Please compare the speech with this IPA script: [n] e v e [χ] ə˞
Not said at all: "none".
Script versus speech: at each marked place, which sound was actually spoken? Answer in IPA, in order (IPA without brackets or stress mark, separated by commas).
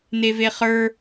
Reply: n, χ